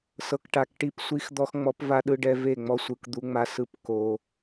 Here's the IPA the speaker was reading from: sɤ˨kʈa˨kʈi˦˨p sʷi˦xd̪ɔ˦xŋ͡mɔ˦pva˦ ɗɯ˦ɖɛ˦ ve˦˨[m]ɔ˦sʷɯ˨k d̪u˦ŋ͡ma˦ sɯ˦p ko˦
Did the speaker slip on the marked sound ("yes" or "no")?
yes